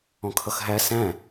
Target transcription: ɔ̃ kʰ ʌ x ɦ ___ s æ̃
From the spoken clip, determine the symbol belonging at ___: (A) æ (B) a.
A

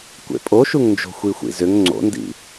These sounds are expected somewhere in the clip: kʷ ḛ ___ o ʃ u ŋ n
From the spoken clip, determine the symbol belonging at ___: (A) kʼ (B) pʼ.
B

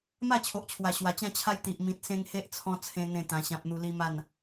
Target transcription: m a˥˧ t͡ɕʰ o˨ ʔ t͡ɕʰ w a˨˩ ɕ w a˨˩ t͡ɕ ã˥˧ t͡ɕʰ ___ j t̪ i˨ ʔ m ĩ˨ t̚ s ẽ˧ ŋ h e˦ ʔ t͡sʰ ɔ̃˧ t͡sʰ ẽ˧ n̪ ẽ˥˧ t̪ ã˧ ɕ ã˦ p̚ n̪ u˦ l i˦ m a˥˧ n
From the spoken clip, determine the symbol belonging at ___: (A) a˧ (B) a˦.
B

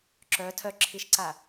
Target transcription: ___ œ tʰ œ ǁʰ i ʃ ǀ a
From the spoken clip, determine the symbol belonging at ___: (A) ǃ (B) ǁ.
B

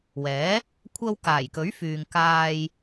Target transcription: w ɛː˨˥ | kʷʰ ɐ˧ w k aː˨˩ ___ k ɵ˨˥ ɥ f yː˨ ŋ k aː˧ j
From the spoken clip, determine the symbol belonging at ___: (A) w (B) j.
B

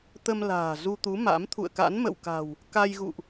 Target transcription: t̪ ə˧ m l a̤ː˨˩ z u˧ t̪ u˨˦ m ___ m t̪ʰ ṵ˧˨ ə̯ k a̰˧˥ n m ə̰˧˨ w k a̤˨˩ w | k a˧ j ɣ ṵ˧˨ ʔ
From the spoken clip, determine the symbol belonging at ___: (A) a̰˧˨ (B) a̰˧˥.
B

